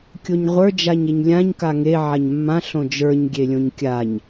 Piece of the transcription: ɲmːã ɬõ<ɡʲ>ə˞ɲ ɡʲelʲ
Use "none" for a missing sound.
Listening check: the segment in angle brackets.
d͡ʒ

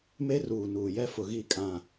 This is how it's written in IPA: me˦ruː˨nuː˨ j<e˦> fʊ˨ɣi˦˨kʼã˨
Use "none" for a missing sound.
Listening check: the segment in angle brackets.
ɛ˦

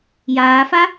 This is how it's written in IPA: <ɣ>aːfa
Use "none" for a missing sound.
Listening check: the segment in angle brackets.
j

